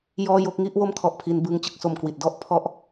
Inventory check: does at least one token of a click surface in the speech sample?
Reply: no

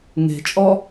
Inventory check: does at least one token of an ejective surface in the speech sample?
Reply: yes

